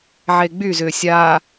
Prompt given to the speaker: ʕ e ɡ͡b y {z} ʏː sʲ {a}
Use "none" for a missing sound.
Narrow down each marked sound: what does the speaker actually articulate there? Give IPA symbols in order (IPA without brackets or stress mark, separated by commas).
z, a